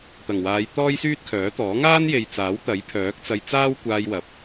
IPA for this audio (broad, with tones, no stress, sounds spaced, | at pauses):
t̪ ɐ˨˩ ŋ w aː˨˧ j t̪ ɔː˥ j s yː˥ t̚ kʰ œː˨˥ t̪ ɔː˨˥ ŋ aː˥ n j e˨ j t͡s aː˨˥ w t̪ ɐ˨˥ j pʰ œː˨˥ k̚ t͡s ɐ˧ j t͡s aː˥ w kʷ aː˧ j w ɐ˨ p̚